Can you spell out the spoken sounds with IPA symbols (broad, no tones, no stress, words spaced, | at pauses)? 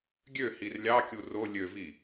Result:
ɡʲøhir lʲɑkʲu ro lʲøvi